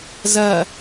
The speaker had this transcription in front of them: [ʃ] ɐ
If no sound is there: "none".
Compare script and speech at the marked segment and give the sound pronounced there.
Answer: z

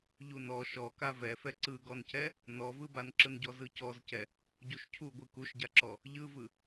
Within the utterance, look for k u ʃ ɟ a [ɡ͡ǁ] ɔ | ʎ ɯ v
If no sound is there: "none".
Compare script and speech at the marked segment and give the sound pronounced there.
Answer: ǁ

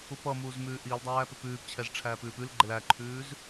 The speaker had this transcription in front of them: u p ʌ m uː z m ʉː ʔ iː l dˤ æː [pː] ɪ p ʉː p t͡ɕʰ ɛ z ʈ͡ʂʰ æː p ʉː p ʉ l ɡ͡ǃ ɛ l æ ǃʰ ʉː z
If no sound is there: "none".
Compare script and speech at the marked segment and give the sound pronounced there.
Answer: p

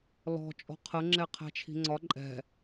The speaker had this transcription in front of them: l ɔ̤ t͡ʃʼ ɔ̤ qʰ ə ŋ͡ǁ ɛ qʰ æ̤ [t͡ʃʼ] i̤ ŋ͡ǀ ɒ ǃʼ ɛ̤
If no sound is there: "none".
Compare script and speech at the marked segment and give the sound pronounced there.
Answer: t͡ʃʰ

